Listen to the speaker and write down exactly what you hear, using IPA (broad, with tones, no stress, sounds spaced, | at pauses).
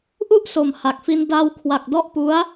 ʔ u˥˩ ʔ s o˨˩ m h a˨˩ k̚ f i˧ n d a˧ w kʰ w a˨˩ k̚ d ɔ˦˥ ʔ p u˦˥ a̯